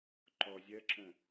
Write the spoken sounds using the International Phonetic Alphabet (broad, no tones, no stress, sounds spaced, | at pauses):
ǃ ɔ zʲ ɜ ǁ ə̃